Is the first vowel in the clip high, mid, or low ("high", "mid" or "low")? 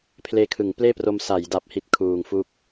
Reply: mid